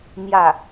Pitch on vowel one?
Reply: falling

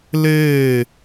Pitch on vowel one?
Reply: falling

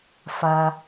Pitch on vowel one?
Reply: low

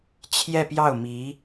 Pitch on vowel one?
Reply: falling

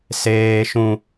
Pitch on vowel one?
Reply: high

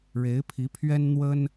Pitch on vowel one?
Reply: rising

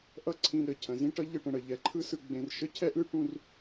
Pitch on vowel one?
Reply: high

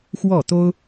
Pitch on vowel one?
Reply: falling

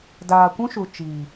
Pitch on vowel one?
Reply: low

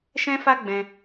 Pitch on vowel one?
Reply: high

